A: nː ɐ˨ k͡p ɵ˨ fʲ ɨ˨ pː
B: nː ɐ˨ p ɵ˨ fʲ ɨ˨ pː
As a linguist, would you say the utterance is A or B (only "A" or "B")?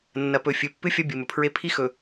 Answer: B